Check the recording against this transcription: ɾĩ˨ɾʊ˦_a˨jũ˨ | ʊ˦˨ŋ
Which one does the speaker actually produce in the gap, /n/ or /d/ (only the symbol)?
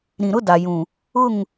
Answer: d